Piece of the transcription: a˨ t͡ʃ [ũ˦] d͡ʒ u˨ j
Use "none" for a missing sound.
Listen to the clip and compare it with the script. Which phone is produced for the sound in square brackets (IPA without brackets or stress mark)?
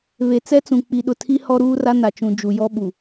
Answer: ũ˨